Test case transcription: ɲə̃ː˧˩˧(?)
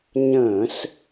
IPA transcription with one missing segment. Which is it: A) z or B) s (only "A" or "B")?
B